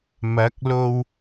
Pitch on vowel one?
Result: rising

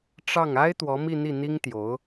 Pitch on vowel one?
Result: falling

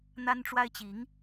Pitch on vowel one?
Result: high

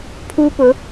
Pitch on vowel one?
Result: high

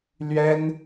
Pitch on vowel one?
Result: high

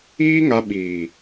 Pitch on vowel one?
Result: high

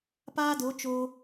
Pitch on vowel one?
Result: high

